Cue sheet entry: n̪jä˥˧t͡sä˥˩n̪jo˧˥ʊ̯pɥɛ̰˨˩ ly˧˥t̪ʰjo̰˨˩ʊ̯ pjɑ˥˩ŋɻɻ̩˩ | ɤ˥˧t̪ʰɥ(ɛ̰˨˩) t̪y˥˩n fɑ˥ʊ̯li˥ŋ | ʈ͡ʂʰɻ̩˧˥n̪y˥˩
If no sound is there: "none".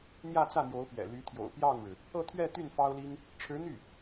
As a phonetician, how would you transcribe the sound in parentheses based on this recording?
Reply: ɛ˥˧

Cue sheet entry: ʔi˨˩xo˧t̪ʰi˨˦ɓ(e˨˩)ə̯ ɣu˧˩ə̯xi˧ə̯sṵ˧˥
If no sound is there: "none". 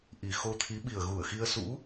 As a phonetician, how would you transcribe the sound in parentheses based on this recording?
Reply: i˨˩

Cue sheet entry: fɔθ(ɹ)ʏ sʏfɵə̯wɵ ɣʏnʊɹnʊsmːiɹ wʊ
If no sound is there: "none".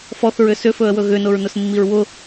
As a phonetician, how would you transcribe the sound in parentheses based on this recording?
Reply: ɹ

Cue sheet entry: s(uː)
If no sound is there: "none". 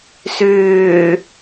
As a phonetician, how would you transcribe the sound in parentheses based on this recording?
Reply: ʏː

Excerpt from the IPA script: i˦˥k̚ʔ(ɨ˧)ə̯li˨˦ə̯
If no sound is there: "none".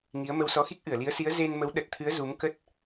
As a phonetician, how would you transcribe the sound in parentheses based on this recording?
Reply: ɨ˧˩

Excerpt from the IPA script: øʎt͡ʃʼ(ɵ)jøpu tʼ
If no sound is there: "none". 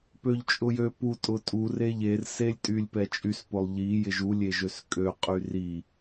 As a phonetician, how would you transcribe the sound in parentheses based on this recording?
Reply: ʊ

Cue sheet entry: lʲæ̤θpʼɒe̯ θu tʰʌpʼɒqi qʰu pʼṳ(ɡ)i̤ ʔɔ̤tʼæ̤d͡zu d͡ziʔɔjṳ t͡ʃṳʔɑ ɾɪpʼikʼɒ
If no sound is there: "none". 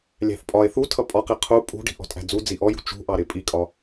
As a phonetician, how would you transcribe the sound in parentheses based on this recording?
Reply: ɖ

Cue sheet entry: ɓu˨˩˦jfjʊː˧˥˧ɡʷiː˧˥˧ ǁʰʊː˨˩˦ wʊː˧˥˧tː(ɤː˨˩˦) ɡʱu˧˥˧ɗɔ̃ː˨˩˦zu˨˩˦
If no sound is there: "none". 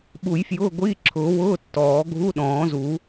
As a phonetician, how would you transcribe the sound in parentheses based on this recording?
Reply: ɔː˨˩˦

